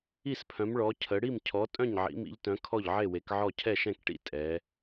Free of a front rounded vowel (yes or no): no